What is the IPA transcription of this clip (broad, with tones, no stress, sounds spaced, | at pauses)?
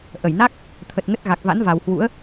ʔ ə˧˩ j n a˦˥ k̚ | t̪ʰ ə˨˩ t̚ ŋ ə˦˥ t̚ ɣ a˨˩ k̚ v a̰˧˥ n v a˨˩ w h w ṵ˧˥ ə̯